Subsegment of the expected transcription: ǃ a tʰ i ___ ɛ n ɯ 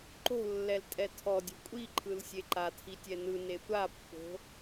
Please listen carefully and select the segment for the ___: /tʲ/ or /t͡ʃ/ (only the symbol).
tʲ